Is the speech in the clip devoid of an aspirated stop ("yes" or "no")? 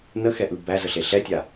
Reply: yes